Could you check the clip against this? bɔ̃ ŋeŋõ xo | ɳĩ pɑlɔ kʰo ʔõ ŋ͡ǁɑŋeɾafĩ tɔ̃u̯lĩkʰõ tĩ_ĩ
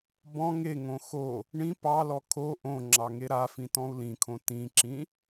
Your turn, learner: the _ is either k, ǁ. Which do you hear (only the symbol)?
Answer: ǁ